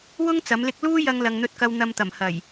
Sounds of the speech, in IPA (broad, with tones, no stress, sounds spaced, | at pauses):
w ʊ˥ ŋ t͡s ɐ˨˥ m l ɪ˥ k̚ l uː˥ j ɐ˧ ŋ l ɐ˨ ŋ n̪ ɵ˧ t̚ k ɐ˧ w n̪ ɐ˧ m t̪ ɐ˨˩ m h ɐ˨˩ j